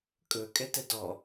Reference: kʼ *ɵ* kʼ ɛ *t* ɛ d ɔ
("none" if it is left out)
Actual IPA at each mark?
ɵ, t

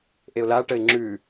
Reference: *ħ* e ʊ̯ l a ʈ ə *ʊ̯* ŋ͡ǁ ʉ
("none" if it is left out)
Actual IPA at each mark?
ʔ, ɪ̯

